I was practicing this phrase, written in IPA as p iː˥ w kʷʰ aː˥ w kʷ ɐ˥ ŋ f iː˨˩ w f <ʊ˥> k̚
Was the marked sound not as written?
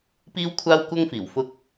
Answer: no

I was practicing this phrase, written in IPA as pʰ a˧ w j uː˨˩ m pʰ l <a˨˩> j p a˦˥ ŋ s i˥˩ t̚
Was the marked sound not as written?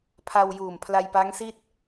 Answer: yes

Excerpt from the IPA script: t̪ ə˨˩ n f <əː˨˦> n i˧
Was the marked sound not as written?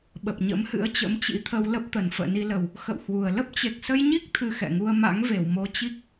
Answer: yes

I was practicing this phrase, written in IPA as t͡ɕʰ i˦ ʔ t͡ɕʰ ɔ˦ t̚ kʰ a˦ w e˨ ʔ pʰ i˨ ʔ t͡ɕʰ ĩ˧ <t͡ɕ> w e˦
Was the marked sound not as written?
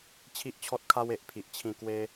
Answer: yes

